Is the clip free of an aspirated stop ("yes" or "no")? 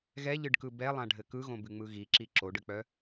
yes